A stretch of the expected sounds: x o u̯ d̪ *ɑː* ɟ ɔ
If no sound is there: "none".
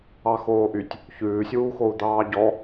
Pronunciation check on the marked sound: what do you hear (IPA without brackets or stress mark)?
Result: ɑː